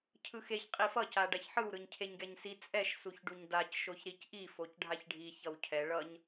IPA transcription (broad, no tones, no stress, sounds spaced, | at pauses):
cʰ ɯ x e ç qʼ i f ʌ c a ɖ a ç ħ ɯ w ɾ ɯ ɲ cʰ e ɲ ɡ ɛ ɲ s i t͡sʼ ɛ ʃ s u ç ɖ u ɲ d a c ʃ o ç ɾ i c ʔ i f o c ɖʱ a ç ɖʱ i ç ʌ w cʰ ɛ ɭ ʌ ɲ